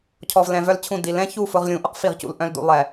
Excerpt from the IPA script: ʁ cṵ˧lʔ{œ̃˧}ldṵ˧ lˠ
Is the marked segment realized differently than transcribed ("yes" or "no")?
no